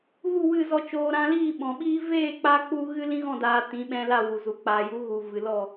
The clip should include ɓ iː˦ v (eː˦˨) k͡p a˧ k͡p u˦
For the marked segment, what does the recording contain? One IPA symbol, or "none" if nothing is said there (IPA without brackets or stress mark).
eː˦˨